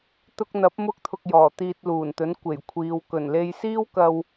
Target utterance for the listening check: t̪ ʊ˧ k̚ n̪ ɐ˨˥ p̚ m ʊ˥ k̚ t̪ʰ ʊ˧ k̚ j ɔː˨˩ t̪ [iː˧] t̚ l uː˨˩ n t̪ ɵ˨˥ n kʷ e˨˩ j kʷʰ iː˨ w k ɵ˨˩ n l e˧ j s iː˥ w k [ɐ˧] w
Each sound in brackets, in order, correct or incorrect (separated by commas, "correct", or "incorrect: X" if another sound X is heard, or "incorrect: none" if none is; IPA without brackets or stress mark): correct, correct